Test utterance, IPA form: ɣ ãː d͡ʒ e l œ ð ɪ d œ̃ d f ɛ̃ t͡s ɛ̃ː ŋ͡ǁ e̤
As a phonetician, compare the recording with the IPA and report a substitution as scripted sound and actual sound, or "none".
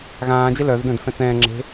none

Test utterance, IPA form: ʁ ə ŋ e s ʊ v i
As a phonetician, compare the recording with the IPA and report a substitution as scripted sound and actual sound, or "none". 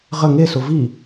none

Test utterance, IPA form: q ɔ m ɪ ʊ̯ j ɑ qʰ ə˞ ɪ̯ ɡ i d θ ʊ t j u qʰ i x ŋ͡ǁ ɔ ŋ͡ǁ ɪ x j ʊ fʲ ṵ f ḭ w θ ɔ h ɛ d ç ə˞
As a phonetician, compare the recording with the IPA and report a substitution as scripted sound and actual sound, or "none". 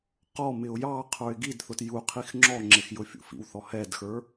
ç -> x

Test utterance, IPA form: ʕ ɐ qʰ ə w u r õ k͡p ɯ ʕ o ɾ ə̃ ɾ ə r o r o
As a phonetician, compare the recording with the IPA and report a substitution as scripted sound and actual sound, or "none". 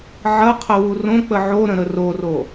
ɯ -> ə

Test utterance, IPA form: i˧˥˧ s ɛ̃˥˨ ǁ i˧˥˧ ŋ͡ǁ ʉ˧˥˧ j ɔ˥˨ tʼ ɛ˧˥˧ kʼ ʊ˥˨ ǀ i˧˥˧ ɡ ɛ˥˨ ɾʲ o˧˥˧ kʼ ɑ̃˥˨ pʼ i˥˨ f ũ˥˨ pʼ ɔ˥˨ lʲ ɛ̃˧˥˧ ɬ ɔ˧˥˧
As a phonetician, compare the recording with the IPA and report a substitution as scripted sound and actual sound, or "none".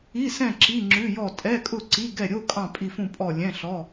none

